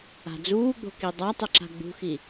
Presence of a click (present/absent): present